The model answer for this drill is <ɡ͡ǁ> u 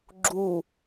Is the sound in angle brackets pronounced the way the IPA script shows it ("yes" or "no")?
yes